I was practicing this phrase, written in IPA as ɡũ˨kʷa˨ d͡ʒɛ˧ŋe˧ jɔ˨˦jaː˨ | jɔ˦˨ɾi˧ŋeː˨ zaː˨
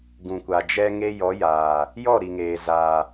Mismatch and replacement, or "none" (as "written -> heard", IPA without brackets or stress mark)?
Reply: i˧ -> i˨